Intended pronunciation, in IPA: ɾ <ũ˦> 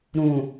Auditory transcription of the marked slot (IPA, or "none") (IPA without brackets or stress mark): ũ˨